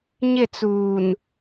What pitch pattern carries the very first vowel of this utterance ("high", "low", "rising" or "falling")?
falling